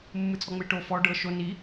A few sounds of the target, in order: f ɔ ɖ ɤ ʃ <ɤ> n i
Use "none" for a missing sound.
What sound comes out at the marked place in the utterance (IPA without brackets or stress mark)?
o